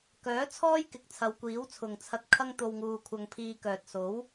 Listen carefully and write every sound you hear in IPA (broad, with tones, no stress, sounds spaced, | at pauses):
k œː˨˥ t͡sʰ ɔː˥ j k ɪ˨˥ k̚ t͡sʰ ɐ˨˧ w kʷ iː˨˥ w t͡sʰ ʊ˨ ŋ t͡sʰ ɐ˧ t̚ kʰ ɐ˥ ŋ t̪ o˧ w ŋ uː˧ kʷʰ ɐ˧ ŋ pʰ iː˧ k œː˨ t̚ s o˨˥ w